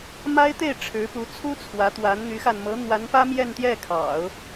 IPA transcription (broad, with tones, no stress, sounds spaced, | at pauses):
m a˥ ɪ̯ t̪ e˥˩ ɪ̯ ʈ͡ʂʰ ɻ̩˧˥ p u˧˥ t͡sʰ u˥ t͡sʰ w ä˧˥ t̪ w a˧˥ n n̪ y˧˥ x a˧ n m ɤ˧˥ n̪ w a˧˥ n p ä˥ m j ɛ˥˧ n t̪ j ɛ˥˩ kʰ ɑ̰˨˩˦ ʊ̯